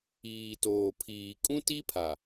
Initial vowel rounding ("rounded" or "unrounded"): unrounded